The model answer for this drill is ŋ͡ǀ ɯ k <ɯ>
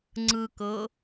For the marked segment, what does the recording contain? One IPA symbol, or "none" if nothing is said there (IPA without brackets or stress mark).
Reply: ɤ